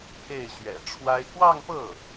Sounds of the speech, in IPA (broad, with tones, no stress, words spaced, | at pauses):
pʰe˥˩ɪ̯ɕɥɛ̰˨˩ʈ͡ʂʰwa˥ɪ̯ kwɑ˥˧ŋpɤ˥˩